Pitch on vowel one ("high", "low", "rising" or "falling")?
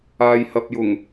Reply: low